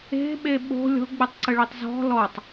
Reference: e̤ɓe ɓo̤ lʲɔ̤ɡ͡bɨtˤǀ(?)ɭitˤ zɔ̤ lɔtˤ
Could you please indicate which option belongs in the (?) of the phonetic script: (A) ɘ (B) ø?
A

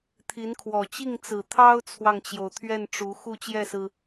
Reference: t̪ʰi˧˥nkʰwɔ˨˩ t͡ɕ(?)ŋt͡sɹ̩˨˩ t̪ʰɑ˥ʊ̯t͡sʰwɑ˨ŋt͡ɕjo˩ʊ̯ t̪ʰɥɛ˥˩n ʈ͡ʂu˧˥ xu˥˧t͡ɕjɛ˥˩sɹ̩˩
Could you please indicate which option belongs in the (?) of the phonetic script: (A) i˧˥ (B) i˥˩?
B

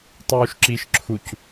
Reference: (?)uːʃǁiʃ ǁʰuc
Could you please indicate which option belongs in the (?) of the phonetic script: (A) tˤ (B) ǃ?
A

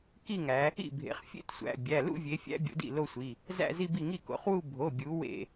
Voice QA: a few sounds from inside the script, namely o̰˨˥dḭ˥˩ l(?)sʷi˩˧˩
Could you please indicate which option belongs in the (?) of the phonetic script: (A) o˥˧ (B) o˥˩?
A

